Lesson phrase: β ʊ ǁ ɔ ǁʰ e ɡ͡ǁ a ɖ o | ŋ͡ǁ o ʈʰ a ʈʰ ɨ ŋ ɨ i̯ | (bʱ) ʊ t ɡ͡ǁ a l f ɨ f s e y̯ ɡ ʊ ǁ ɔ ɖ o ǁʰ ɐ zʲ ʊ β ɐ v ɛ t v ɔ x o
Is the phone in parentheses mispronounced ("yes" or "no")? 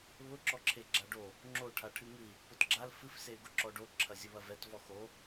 yes